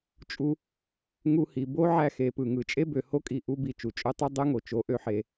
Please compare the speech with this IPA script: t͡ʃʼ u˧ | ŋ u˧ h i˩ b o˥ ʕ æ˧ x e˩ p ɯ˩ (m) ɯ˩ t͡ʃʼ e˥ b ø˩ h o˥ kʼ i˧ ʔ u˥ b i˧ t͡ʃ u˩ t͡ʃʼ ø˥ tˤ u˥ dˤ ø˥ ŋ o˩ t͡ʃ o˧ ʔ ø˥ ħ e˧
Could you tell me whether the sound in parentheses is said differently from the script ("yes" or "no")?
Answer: yes